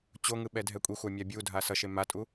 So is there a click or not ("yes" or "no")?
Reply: no